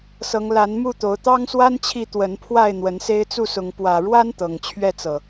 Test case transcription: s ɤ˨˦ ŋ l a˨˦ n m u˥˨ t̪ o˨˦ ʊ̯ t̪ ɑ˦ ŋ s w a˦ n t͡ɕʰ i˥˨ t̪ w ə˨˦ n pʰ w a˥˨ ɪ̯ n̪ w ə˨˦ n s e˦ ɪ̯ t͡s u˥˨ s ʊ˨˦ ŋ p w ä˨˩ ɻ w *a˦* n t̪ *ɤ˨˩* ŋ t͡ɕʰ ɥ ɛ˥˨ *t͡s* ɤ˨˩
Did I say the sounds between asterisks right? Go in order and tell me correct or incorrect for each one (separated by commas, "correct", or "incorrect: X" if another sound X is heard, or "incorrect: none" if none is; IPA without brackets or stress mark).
correct, correct, correct